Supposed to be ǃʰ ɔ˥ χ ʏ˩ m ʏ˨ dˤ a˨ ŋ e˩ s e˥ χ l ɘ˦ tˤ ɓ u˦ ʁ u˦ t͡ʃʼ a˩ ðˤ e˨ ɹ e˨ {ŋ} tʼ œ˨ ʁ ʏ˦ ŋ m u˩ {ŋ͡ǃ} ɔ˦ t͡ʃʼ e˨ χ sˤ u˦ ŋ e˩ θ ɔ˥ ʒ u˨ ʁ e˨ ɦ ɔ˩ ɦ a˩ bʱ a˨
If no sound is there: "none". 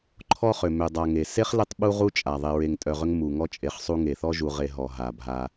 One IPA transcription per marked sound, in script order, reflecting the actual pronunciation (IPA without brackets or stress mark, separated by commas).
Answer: ŋ, ŋ